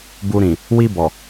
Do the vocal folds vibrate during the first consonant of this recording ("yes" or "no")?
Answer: yes